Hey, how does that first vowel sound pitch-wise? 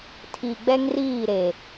low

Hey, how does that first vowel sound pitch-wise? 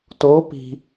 rising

